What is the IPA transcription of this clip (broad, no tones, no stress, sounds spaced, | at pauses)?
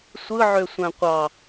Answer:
sʷ ɯ ʕ ø sʷ æ̃ qʷ ɑ